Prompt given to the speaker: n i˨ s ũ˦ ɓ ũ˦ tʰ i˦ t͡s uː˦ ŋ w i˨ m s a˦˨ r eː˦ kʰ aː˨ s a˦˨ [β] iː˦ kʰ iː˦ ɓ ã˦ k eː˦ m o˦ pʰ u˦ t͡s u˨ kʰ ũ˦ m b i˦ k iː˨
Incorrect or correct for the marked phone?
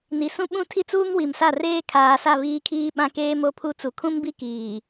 correct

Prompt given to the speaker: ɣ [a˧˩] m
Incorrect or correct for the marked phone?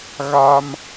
incorrect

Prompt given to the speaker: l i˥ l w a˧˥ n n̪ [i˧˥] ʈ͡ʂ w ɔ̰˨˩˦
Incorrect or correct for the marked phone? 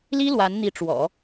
correct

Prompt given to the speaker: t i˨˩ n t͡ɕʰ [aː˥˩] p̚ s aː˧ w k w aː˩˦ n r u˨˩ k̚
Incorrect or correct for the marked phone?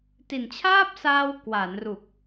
correct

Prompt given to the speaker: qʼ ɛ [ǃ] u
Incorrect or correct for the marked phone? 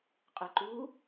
correct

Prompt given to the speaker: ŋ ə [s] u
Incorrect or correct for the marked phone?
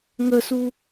correct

